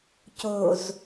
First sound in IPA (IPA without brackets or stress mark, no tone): c